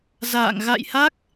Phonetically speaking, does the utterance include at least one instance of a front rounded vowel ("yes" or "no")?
no